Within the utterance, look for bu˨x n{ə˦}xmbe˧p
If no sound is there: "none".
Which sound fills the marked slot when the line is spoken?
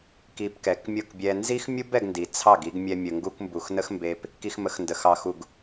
ə˦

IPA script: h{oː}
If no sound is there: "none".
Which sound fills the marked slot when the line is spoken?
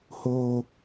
oː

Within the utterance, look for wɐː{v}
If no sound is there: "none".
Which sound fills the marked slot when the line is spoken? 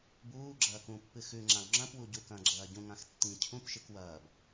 b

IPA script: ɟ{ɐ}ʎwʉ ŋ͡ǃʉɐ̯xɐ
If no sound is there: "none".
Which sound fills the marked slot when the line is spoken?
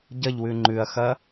ɐ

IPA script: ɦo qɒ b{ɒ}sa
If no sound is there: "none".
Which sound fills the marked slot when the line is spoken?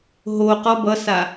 ʌ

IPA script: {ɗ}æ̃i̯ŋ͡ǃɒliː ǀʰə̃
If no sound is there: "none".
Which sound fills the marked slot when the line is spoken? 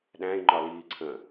ɗ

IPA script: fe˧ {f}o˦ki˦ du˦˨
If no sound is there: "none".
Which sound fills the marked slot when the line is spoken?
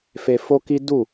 f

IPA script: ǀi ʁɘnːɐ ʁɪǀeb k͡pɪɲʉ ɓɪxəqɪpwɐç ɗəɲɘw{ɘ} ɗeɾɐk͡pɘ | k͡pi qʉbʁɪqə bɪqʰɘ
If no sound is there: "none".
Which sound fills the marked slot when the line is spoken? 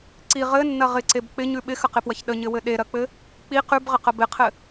ɘ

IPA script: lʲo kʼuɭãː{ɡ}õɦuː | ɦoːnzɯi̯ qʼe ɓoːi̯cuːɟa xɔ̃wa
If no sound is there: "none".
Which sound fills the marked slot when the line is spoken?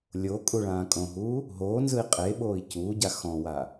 kʼ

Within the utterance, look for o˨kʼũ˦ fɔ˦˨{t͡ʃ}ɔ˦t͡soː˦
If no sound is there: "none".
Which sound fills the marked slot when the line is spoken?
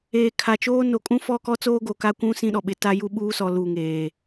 k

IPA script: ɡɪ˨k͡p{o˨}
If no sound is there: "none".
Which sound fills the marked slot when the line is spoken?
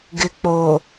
o˨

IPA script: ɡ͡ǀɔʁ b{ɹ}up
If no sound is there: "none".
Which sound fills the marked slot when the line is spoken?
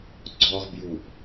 j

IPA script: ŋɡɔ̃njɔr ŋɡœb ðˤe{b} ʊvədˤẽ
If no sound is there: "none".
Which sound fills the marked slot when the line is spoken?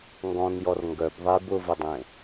b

